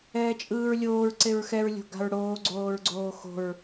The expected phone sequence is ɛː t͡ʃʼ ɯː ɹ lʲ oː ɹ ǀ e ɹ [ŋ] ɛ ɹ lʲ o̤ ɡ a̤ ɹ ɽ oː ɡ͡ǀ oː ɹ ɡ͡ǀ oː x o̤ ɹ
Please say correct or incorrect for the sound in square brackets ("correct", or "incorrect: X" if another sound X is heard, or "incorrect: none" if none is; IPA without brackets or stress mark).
incorrect: x